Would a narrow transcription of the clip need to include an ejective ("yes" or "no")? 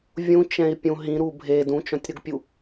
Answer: no